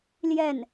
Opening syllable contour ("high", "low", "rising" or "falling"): falling